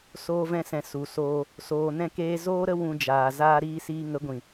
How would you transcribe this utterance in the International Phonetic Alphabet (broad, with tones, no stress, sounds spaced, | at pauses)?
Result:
s oː˦ v ɛ̃˦ s ɛ̃˧ s u˨ s oː˧ | s oː˧ n ɛ̃˦ k eː˦ z oː˦ ɾ ə˦ w ũ˧ d͡ʒ aː˨ z aː˦ ɾ iː˦ s iː˧ ŋ ə˨˦ ɡʷ ĩ˨